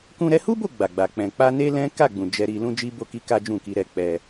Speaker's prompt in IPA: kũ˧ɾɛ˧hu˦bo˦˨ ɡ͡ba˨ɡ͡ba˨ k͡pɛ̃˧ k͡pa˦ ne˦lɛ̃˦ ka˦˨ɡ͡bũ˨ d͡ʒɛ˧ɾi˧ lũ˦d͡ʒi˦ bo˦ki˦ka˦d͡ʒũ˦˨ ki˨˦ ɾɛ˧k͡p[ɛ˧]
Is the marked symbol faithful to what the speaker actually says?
yes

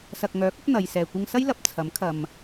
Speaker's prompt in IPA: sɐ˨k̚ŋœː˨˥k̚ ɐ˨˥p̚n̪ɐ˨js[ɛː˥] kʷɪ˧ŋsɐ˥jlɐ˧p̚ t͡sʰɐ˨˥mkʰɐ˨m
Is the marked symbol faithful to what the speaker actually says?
no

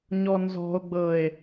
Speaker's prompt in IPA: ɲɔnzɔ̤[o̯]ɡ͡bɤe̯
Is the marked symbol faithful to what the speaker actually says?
yes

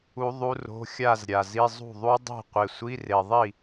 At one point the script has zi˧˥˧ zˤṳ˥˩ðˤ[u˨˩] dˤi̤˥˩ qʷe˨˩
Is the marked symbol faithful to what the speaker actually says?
no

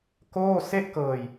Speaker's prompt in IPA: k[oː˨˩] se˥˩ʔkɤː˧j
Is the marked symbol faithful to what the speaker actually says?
no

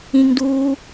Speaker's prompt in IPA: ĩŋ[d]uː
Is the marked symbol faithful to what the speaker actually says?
yes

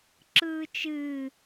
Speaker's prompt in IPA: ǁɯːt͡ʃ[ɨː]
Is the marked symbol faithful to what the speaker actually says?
yes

